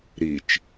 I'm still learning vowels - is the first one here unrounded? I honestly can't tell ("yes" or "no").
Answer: yes